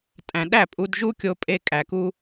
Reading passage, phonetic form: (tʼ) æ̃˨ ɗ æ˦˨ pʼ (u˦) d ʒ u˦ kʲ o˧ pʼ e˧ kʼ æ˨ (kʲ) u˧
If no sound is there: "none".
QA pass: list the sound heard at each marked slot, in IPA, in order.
tʼ, u˧, k

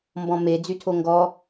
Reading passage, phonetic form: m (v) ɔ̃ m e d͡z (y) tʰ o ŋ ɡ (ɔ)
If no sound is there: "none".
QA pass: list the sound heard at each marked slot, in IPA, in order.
b, y, ɔ

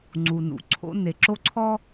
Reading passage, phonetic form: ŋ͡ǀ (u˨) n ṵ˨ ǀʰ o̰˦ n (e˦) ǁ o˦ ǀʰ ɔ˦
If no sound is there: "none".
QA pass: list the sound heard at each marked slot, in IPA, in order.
u˨, e˨

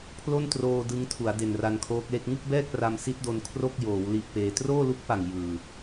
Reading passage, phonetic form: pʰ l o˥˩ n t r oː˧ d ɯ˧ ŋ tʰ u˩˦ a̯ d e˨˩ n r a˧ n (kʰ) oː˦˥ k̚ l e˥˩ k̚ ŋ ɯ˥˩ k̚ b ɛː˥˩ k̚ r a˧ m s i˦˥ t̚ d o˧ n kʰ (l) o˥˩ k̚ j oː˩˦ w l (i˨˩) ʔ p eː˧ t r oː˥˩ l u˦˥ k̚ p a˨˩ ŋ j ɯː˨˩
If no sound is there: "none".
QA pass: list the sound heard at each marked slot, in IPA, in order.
kʰ, r, i˦˥

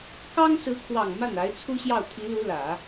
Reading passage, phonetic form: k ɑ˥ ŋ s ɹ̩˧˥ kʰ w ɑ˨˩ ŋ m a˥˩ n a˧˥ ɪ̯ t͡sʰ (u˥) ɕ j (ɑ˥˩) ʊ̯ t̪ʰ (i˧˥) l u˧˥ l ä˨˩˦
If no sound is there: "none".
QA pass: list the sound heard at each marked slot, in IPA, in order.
u˥, ɑ˥˩, i˧˥

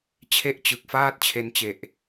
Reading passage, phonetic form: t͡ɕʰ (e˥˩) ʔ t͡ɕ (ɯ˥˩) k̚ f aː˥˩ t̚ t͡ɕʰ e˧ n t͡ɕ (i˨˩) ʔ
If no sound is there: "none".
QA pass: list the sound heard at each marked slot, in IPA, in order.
e˥˩, ɯ˨˩, e˨˩

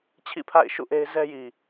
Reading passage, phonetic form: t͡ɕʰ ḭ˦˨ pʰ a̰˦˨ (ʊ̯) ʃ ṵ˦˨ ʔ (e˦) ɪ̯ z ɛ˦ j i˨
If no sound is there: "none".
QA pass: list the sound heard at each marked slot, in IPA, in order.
ɪ̯, e˦

